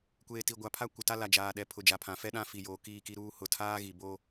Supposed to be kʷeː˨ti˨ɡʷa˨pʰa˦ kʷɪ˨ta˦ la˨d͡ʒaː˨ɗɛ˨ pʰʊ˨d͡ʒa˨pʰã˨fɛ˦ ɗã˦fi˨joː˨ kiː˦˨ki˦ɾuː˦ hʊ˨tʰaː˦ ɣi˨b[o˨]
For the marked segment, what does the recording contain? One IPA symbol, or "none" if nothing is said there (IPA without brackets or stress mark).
o˦